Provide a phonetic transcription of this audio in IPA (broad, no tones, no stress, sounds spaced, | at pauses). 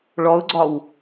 ɭ ɔ ʊ̯ ɡ͡ǀ ɒ w